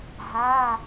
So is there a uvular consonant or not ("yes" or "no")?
no